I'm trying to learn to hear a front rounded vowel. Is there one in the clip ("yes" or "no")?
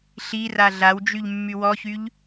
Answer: yes